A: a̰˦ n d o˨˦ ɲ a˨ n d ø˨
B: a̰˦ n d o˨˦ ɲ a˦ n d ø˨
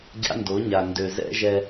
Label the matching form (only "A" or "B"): A